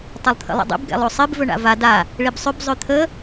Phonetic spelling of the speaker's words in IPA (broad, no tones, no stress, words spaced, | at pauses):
tˤɘlˠt̪ʰə̰lˠə̰dˤḭb ɡɛ̰lˠosˤib vɵɳa̰va da | ɭibsˤʏb zˤøt̪ʰə